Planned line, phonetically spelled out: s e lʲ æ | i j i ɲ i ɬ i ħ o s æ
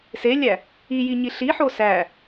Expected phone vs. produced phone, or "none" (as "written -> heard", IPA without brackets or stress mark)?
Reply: none